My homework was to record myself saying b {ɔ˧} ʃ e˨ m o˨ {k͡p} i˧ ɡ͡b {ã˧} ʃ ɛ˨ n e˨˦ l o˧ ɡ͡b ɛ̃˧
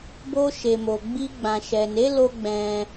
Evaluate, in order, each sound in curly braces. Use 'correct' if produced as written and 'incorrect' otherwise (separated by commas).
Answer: incorrect, incorrect, incorrect